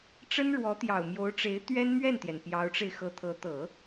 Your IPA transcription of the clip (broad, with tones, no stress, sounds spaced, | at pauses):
ʈ͡ʂ ə˥ n ɻ w ɔ˧˥ t̪ j ɑ˨˩ ʊ̯ m j o˧˥ ʊ̯ ʈ͡ʂ e˧˥ ɪ̯ t̪ ɥ ɛ˥ n m ɥ ɛ˥˩ n t̪ j ɛ˩ n p j ɑ˧˥ ʊ̯ ʈ͡ʂ e˧ ɪ̯ x ɤ˧˥ t̪ʰ ɤ˧˥ t̪ ɤ˨˩˦